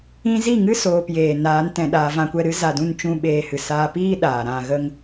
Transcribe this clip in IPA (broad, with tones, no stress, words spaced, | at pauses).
ĩ˦ zi˦˨ŋɨ˦ soː˧pjeː˨ naː˨˦n tɛ̃˧ɗaː˧ vã˧kʷɛ˧ɾɨ˦ za˧dũ˦˨n t͡ʃũ˦ɓeː˧hɨ˨saː˦ piː˦ ɗaː˨ɾã˧ ɣə˦ŋ